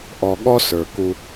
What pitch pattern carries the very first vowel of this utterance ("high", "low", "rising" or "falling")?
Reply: low